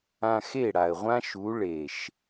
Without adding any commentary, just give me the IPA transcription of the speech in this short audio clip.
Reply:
ã˧ x e˦˨ ɽ a˨ ə̯ ʁʷ ã˦ ʃ u˨˦ ɭ e˨ ʃ

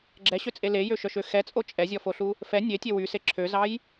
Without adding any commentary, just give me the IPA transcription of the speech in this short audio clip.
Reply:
ɡ͡ǁ ɛ ɕ ø t͡sʼ e l e j ø ʃ œ ʃ ø x ɛ t͡sʼ o t͡ʃʼ ɛ zʲ ɔ f o ɬ u | f ɛ nʲ e tʲ e w y s e ǁʰ ø z ɑ j

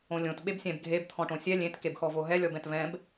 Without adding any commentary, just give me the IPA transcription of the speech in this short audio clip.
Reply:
õ lʲ õ t ɓ e b sʲ ɛ̃ b ɡʱ e b t̪ʰ ɔ̃ ʈ õ sʲ ɛ lʲ ẽ t k e b x ɔ v o ɦ ɛ lʲ ɔ b ɛ̃ t v ɛ̃ b

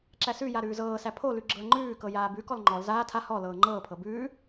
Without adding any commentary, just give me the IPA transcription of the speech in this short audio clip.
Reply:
ǁ æ s ʉ j a ɾ ʉː z ɤː s æ pʰ o l ʉ ɡ͡ǁ ɤ ɐ̯ ŋ͡ǃ ʉː k ɤ j aː b ʉ k ɔ l ŋ͡ǃ ɔ l z aː tʰ a h ɔ l ɤː ŋ͡ǃ ɤː pʰ ɤ b ʉː

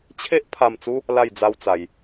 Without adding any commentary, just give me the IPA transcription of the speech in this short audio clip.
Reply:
t͡ɕʰ e˦ ʔ pʰ a˥˧ m t͡s u˦ | l a˥˧ j d͡z a˦ w t͡s a˧ j

